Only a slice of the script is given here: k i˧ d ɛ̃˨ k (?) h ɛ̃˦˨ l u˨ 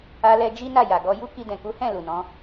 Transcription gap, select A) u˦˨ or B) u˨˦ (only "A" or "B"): B